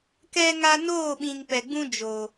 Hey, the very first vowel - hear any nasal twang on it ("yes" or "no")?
no